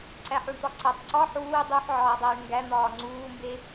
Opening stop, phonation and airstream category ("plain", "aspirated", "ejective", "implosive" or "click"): click